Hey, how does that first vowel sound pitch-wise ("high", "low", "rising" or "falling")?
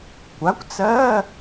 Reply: rising